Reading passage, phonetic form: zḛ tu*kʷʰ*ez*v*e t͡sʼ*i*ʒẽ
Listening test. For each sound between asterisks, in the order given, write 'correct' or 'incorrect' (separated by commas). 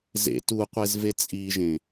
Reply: incorrect, correct, correct